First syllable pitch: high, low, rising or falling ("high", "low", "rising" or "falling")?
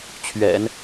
low